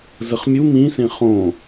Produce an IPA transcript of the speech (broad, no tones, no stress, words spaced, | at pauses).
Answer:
zəχmʲu mĩsẽ χõ